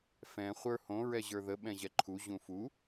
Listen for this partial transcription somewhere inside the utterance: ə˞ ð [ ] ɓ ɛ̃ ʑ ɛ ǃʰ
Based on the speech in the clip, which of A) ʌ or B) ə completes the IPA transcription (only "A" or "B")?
B